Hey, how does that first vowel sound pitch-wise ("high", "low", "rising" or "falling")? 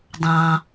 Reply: low